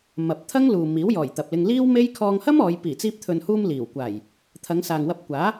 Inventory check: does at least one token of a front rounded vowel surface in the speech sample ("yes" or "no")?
no